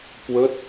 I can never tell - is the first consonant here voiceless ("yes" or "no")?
yes